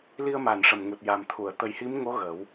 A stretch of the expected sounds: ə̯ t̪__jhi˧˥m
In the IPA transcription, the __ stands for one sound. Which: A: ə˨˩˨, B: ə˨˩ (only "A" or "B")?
B